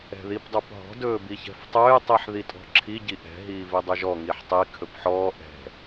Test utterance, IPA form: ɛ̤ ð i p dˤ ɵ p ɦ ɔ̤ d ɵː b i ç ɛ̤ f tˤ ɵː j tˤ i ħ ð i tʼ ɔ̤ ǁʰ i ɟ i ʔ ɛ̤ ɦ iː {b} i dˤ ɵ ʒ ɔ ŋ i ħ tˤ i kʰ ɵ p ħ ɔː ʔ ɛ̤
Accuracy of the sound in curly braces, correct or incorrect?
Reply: incorrect